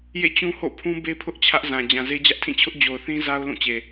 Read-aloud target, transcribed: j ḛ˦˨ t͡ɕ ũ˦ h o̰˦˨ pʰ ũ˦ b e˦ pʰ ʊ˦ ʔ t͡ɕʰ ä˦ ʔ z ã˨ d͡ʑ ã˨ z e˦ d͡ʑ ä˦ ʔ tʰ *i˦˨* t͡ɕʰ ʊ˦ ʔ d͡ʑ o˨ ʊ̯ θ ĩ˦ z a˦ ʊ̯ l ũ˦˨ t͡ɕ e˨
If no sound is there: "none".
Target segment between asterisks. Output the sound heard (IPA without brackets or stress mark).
ĩ˦˨